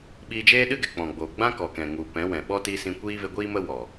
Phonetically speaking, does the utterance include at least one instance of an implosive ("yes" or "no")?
yes